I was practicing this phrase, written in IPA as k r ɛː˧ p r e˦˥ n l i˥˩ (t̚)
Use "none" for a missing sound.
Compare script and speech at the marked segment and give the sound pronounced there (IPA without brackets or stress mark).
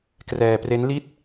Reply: t̚